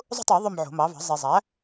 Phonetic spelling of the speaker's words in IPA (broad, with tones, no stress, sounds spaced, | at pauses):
zˤ ṳ˥˧ tˤ ɯ˨˩˦ ðˤ ø˥˧ m ʕ o̤˨˩˦ m ɑ˩˥ v ɑ̤˩˥ zˤ e˨ zˤ æ˩˥